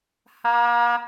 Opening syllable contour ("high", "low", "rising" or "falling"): high